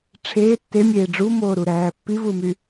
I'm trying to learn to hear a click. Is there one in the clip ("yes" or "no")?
no